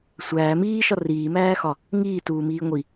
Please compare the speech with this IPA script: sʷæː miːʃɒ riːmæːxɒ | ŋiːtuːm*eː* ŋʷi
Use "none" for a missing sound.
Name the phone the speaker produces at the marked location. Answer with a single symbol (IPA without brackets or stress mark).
iː